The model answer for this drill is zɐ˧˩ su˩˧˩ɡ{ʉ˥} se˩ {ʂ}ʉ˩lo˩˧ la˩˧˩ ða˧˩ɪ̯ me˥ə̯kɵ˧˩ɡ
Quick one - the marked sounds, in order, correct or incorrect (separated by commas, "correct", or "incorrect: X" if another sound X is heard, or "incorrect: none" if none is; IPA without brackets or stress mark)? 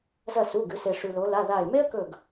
incorrect: ʉ˩˧, correct